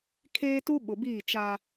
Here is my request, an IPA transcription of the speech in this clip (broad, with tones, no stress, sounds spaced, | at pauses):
kʰ eː˦ t u˦ ɓ ʊ˨ b iː˦˨ t͡ʃ a˦